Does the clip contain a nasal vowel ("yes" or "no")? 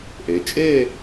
no